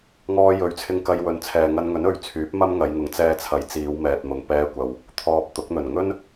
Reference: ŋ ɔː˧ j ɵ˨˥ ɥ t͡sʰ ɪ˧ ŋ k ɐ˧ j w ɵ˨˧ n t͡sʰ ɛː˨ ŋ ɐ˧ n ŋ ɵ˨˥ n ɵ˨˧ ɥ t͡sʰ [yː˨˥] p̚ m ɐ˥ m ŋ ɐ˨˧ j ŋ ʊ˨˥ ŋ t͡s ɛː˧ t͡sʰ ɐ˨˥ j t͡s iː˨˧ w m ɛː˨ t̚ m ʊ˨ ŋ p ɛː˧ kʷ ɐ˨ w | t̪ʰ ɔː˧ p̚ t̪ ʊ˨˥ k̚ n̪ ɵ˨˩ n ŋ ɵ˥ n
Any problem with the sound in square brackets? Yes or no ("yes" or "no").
no